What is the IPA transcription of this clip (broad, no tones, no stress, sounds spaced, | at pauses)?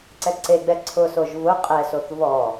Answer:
ǀ ɛ ǀ e ɡ͡b ɛ ǀʰ ʊ s o ʒ v ʊ qʼ ɛ s o θ v ɔ